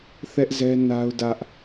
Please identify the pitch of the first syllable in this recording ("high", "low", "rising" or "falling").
high